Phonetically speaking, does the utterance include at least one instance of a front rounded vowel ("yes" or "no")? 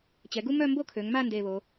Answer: yes